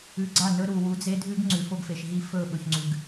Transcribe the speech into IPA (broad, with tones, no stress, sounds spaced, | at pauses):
ʉ˨ ɡ͡ǀ a˦˨ n ɵ˦ ɾ u˨ w u˨˦ d͡z e˦ dʱ ʉ˦ ɡ ŋ͡ǀ ʉ˨ f o˦ ɡ f e˨ ʃ ɦ i˦ f ɵ˦˨ ɓ ɵ˨ ç ŋ͡ǀ ʉ˨ ɡ